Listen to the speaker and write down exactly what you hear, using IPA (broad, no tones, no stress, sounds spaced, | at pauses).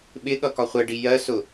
ɓ ɪ ɠ ʌ k ɒ χʷ ɛ ɖ i j ɜ s ʊ